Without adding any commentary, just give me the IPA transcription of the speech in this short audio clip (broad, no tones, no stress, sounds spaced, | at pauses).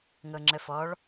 ŋ ɤ ŋ͡ǁ ə f ɔ ɭ